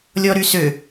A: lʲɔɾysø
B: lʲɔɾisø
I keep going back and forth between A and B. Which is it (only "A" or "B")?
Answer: A